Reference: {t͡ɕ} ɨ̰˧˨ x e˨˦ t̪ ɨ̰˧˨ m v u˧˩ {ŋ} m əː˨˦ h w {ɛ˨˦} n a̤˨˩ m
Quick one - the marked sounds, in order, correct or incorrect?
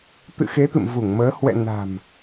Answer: incorrect, correct, incorrect

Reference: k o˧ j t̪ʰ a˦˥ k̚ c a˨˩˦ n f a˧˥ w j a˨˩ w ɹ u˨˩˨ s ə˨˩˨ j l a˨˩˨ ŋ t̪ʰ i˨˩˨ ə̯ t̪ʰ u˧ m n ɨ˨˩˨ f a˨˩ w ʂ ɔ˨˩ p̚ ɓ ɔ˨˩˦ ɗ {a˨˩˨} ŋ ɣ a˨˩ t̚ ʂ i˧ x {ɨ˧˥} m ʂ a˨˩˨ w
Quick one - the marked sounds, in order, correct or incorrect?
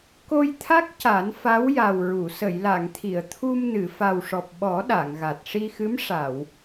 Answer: correct, correct

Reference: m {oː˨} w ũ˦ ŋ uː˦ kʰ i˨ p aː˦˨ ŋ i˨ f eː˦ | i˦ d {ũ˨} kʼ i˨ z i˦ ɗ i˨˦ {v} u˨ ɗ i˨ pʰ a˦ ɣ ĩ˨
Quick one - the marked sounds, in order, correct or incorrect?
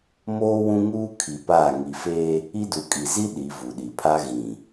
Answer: incorrect, incorrect, correct

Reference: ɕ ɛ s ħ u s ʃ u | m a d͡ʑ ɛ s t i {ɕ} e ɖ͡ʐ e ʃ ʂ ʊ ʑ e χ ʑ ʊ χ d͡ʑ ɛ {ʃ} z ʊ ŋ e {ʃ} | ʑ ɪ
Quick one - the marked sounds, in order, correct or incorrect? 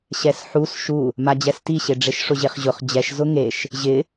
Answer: correct, correct, correct

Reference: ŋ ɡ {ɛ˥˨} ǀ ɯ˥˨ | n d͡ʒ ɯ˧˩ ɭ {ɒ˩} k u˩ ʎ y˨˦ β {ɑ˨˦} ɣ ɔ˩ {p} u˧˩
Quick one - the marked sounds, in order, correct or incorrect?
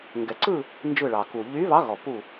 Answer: incorrect, incorrect, correct, correct

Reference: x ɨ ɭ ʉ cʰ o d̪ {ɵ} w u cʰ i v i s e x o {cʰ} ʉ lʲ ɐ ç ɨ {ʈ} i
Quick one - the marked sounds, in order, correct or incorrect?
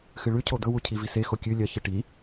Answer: correct, incorrect, correct

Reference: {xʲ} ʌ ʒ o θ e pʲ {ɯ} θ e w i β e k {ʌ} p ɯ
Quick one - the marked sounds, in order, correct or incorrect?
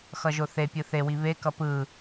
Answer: incorrect, correct, correct

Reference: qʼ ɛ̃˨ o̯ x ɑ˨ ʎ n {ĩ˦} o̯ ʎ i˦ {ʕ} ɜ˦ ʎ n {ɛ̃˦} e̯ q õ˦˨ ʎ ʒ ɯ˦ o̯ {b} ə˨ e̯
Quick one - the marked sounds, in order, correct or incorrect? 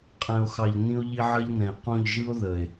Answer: correct, correct, incorrect, incorrect

